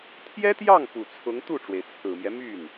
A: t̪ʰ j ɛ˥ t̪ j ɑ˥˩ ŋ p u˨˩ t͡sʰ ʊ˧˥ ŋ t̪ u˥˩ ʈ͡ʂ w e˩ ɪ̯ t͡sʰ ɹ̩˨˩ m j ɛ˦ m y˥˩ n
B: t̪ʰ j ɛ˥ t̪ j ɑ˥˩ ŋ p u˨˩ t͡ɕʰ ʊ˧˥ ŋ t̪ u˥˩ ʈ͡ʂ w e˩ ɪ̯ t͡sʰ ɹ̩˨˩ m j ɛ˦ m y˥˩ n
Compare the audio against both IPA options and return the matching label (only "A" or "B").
A